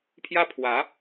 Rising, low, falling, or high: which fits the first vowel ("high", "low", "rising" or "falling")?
high